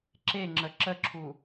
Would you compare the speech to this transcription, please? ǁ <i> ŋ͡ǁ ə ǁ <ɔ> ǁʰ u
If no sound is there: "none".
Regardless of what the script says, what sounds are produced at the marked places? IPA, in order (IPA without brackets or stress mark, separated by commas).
e, ə